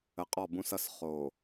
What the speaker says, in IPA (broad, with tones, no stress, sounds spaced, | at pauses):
ə˨ qʼ ɔ˦˨ b ũ˦ s ʌ˦ s χ o˨